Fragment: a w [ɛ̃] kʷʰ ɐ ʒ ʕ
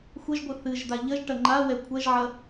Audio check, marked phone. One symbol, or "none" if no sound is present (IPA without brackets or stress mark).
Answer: ɛ